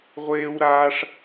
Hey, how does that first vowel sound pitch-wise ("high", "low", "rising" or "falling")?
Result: high